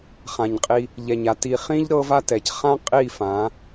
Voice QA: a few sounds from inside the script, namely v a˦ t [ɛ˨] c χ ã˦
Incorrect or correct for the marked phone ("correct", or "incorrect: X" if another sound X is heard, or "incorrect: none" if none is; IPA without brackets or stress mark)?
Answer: correct